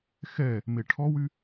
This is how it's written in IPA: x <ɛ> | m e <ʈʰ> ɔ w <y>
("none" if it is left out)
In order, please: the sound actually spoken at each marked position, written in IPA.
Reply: ɛ, ʈʰ, y

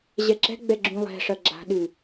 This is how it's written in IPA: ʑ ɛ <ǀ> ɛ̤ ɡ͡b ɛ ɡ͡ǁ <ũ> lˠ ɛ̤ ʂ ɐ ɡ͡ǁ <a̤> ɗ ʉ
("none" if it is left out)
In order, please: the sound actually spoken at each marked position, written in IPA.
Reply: ǁ, ũ, a̤

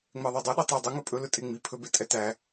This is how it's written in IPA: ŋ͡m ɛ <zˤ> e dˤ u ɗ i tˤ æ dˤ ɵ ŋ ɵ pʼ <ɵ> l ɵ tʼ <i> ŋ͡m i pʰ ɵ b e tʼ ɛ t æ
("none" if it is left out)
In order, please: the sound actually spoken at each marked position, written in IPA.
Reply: ðˤ, ɵ, e

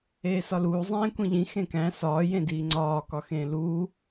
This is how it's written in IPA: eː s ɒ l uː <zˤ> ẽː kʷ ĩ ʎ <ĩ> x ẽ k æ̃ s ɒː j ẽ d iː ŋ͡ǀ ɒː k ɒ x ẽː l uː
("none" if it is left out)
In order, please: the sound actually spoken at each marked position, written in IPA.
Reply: zˤ, ĩ

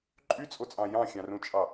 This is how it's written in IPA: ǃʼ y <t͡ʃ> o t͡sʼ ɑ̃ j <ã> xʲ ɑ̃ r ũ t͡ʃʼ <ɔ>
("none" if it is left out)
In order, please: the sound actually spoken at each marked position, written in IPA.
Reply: t͡sʼ, ɑ̃, ɑ

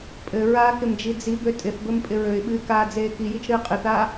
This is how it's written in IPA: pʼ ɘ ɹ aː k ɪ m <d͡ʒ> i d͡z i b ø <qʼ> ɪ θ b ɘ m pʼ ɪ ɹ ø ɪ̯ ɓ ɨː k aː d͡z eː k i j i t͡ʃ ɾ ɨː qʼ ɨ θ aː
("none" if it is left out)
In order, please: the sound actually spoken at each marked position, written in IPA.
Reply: d͡ʒ, tʼ

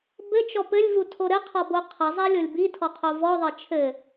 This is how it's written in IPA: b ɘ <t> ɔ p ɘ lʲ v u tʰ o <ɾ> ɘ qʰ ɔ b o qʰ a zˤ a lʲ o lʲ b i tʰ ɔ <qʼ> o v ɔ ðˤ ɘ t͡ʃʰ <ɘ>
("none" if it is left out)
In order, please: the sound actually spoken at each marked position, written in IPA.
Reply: t͡ʃ, ɾ, qʰ, ɘ

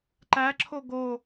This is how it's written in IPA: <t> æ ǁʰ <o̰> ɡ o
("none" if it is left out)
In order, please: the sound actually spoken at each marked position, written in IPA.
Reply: ǃ, o

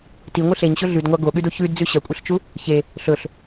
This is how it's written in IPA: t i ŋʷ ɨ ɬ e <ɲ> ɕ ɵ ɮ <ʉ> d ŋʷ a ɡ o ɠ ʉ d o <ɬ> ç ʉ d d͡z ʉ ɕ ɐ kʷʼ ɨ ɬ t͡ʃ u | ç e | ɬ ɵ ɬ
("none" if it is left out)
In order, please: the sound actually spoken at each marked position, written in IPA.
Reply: ɲ, ʉ, none

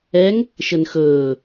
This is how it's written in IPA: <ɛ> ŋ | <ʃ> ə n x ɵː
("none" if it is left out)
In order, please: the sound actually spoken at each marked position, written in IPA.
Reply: ɛ, ʃ

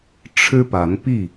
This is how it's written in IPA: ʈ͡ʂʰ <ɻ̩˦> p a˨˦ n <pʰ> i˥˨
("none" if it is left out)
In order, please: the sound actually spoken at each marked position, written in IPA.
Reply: ɻ̩˦, p

